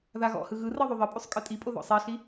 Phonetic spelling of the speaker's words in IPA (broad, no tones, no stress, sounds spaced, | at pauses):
ð a ɣ ɔ̰ h ɯ ɣ ɯ r ɤ ðˤ u ðˤ ɤ pʼ u sˤ kʼ ɯ tʼ i pʼ o ð ɔ̰ sˤ e ɬ i